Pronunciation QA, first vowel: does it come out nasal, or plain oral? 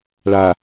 oral